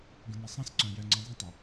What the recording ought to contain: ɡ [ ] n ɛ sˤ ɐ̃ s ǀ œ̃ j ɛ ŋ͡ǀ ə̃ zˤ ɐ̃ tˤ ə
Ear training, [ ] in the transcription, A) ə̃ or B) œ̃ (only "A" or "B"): A